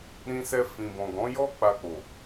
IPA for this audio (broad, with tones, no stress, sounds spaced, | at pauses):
ɾ ĩ˧ s ɛ˧ f ĩ˨ b ɔ̃˨ ɡ ɔ̃˨˦ j ɔ˦ k͡p a˧ k͡p o˨